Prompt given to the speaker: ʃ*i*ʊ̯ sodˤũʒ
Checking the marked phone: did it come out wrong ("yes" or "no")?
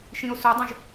yes